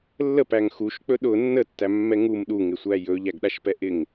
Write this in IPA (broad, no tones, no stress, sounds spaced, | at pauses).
lː ə p æ ŋ x u ʃ k͡p ɵ ɗ ʊ nː ə tː æ mː ɛ ŋ u m ɗ u ŋ ɪ sʷ æ j ɵ ʎ æ ɡ ɗ a ʃ p ɛ ʔ ɪ ŋ